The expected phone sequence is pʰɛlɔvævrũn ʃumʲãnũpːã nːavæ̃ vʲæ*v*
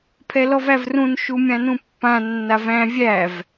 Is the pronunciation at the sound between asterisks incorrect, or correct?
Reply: correct